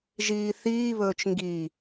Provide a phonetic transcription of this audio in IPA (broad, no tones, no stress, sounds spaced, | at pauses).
ʒ iː θ iː β ɵː t͡ʃ ŋ ɡ i